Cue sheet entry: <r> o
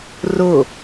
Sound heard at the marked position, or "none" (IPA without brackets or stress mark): r